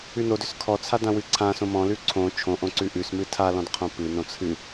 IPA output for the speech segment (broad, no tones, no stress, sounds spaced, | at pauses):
ʉ n o d ʏ s kʰ ɔ t͡sʰ a d ã w ɨ ǀʰ ã s õ m ɔ̃ l ʉ ǀʰ õ t͡ʃʰ õ ʔ õ ǀ ʉ ʔ ʉ s m ɨ tʰ a l ɔ̃ d qʰ õ p ɨ n õ t͡sʰ ɨ